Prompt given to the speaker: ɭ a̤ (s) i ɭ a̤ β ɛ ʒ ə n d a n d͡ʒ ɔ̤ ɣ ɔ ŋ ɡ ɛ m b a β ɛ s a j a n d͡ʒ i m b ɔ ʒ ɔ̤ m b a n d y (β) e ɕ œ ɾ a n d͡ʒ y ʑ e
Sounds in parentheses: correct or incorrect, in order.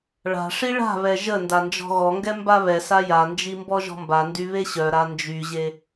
incorrect: ʂ, correct

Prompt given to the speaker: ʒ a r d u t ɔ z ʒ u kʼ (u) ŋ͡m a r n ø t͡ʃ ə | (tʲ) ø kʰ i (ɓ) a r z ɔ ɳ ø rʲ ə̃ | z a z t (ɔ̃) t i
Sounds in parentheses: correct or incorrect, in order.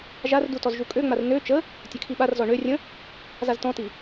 incorrect: ø, correct, correct, correct

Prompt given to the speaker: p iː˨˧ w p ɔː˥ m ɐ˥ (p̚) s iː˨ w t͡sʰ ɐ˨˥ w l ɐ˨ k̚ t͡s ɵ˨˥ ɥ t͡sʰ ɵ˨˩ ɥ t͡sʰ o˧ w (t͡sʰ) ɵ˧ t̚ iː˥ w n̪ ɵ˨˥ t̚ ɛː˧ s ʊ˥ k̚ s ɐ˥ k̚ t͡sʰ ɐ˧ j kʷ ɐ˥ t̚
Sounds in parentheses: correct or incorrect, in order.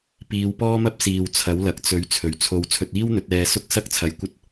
correct, correct

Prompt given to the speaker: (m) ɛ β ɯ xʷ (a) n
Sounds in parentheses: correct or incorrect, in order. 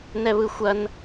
incorrect: n, incorrect: ɐ

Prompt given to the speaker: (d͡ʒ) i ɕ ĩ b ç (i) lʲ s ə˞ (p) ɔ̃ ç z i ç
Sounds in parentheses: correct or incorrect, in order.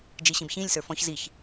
correct, incorrect: ĩ, incorrect: f

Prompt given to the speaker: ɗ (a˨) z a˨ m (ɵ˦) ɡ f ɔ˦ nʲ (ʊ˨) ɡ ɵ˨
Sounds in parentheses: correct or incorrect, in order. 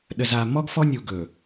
incorrect: ə˨, incorrect: ɔ˦, incorrect: u˨

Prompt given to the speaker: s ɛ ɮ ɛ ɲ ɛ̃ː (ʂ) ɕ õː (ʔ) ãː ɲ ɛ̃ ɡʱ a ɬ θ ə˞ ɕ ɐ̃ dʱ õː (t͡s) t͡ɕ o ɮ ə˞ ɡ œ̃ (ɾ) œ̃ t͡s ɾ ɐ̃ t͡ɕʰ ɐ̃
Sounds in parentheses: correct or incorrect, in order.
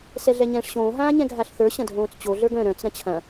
correct, incorrect: ɦ, correct, correct

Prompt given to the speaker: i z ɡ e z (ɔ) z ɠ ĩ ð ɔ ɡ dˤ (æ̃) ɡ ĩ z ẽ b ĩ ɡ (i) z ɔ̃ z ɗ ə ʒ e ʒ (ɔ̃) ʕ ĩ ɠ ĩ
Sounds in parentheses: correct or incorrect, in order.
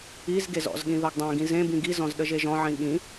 incorrect: ɔ̰, correct, correct, correct

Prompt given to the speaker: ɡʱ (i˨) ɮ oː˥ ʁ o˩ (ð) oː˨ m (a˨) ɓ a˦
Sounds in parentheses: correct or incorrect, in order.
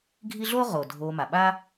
incorrect: i˦, incorrect: dʱ, incorrect: a˩

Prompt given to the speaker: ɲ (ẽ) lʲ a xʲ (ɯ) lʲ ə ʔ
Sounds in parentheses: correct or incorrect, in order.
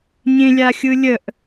correct, correct

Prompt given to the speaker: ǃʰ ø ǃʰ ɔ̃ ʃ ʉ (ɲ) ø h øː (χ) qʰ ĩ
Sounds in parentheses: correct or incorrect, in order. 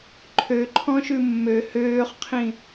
incorrect: mː, correct

